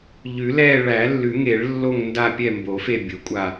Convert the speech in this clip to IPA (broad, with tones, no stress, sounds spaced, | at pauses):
ʎ ʉ˨˩˦ l ɛː˦˨ ɭ æ˨˩˦ lː ʉ˨˩˦ ŋ e˨˩˦ ɭ lː o˦˨ ŋ n d a˦˨ pʲ ɛ˦˨ m b o˨˩˦ f e˦˨ bʲ o˨˩˦ kʷʼ a˦˨